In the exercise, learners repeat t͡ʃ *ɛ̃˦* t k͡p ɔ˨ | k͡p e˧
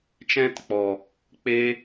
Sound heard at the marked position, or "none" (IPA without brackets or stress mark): ɛ̃˦